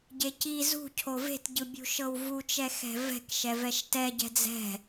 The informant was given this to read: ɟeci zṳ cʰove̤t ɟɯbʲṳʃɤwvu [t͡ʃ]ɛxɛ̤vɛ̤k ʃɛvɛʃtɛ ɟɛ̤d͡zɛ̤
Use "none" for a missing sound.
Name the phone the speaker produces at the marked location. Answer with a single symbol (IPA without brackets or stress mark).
t͡ʃ